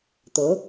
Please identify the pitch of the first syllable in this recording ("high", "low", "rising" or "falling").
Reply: rising